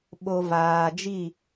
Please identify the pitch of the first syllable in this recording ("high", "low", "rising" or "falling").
low